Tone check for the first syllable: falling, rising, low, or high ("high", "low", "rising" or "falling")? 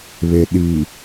low